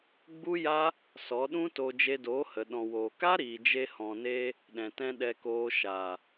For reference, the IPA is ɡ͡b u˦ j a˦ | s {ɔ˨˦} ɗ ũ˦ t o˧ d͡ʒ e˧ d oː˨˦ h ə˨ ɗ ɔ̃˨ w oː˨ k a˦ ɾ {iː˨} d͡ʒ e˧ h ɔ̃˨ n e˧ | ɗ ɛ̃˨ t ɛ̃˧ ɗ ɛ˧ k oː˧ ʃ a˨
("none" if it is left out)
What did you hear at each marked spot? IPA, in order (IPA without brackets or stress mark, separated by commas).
ɔ˨˦, iː˨